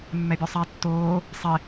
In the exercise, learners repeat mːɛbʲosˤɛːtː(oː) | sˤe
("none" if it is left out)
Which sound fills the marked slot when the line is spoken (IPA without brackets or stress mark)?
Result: oː